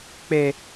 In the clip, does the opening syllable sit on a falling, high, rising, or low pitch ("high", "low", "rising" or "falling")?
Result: low